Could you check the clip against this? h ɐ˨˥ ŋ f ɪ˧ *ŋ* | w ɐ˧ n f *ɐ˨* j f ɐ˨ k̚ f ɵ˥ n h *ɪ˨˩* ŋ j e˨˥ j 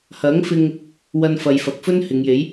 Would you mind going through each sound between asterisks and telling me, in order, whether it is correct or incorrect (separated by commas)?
correct, correct, incorrect